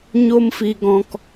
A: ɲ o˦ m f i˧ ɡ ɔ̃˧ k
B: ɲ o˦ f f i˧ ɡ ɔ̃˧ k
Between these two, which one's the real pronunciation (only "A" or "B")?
A